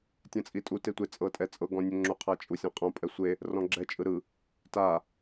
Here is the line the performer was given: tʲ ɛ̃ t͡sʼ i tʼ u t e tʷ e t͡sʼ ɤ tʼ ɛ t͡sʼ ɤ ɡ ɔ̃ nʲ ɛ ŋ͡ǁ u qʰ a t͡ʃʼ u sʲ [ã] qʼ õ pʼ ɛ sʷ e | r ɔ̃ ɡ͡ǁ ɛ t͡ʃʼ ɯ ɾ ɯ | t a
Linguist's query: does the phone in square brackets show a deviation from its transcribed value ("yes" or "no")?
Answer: no